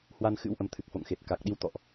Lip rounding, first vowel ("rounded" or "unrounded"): unrounded